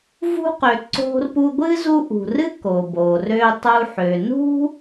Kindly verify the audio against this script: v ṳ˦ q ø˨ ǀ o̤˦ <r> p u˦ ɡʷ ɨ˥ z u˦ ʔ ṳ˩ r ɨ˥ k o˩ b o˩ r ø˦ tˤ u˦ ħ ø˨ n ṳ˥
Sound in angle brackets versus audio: correct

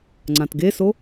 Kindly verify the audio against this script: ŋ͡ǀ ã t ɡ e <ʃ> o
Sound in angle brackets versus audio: incorrect: s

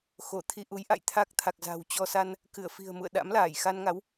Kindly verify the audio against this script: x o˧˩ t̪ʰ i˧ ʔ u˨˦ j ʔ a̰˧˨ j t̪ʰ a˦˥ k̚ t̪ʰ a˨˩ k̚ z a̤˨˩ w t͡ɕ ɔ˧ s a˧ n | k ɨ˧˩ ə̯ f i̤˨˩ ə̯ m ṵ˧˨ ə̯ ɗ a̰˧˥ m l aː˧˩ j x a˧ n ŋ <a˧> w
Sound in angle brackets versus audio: incorrect: a˨˦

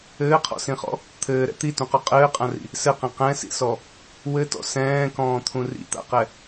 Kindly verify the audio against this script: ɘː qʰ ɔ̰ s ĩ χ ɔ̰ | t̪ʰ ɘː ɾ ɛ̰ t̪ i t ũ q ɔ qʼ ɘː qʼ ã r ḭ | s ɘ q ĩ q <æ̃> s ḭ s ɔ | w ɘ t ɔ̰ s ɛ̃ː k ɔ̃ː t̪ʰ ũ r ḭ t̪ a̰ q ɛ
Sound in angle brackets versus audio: incorrect: ɛ̃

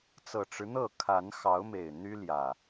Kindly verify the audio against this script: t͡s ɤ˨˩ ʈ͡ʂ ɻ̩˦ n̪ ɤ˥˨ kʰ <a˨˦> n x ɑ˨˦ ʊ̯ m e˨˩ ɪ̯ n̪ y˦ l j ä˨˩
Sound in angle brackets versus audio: correct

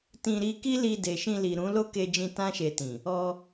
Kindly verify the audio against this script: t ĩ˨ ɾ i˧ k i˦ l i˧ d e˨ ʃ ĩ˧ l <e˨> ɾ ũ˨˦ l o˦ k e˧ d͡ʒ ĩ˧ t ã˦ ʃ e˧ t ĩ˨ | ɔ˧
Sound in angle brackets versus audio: incorrect: i˨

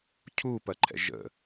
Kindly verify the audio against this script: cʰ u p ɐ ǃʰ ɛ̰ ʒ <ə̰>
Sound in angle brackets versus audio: correct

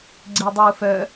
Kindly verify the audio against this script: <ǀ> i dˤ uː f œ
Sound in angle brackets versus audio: incorrect: ɡ͡ǀ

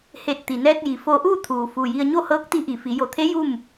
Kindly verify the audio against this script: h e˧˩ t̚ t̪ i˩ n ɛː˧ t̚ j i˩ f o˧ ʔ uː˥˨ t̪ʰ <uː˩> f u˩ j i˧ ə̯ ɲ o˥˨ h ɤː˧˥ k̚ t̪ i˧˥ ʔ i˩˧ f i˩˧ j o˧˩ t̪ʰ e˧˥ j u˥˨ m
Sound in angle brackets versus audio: correct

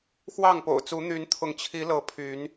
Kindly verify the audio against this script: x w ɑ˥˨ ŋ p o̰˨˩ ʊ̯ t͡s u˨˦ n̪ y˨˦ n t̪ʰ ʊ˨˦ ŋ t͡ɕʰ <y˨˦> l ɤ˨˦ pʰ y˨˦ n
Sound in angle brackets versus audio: incorrect: i˨˦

